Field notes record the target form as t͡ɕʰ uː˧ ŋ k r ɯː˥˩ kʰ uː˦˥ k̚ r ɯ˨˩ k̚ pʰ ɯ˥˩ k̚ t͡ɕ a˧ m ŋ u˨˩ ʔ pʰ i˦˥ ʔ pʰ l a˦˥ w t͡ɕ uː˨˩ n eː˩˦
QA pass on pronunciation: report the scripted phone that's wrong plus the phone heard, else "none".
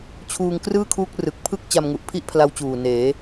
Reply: none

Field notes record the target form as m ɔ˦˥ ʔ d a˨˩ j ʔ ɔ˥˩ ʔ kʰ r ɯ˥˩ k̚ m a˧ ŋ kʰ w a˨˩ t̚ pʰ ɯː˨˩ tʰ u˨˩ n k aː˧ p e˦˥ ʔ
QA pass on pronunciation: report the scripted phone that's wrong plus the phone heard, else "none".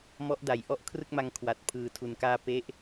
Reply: none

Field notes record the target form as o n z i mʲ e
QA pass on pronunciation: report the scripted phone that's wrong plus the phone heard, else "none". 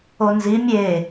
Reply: none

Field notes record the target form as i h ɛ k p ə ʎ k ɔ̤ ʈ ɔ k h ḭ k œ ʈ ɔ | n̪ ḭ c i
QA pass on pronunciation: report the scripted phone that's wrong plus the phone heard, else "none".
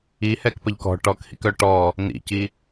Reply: none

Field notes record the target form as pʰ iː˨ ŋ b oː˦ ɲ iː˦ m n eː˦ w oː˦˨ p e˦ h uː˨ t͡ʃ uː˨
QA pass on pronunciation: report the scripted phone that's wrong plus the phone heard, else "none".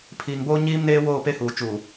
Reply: none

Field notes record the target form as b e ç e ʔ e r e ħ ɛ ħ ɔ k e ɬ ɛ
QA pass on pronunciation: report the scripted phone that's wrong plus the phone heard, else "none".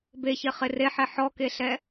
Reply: ʔ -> χ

